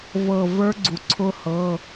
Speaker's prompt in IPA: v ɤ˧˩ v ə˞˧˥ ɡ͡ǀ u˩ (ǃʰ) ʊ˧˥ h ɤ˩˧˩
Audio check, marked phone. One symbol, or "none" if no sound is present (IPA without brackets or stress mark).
ǀʰ